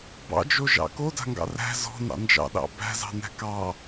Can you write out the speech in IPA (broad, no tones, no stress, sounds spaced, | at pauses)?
b ɑ̰ d͡ʒ o ʒ ɑ̰ k o d a̤ ŋ ɡ ɑ̰ r æ̤ z ɔ̤ n ɑ̰ n d͡ʒ ɑ̰ ɗ ɑ̰ b æ̤ z ɑ̤ n æ̤ k ɑ